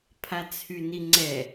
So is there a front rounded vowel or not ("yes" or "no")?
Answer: yes